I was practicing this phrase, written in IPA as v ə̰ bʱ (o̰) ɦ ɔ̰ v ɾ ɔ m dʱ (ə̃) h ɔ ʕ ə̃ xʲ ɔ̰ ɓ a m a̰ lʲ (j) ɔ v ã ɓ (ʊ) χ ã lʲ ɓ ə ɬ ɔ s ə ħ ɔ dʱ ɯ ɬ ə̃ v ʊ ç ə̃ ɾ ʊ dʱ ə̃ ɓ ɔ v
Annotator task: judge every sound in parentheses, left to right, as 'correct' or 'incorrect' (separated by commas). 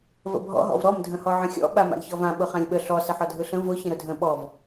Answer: incorrect, correct, incorrect, correct